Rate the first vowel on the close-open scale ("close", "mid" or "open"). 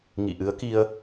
close